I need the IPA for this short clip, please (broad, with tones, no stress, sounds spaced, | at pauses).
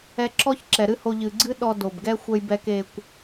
ɛ˧ ǁ ɔ˦ ç ǁ ɛ˨ ɾ ɨ˦ h o˧ ʎ ɨ˨ ɡ͡ǀ ɨ˦ ɗ ɔ˧ d o˨ b ɡ ɛ˦ xʷ ɛ˧ j b ɛ˧ k e˧ kʷ